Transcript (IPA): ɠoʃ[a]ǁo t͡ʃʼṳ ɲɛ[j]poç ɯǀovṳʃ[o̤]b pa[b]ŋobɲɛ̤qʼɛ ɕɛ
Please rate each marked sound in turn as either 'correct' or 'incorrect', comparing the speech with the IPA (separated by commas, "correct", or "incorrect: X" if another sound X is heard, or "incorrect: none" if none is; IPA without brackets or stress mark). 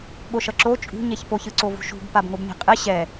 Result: incorrect: ʌ, incorrect: ç, incorrect: ṳ, correct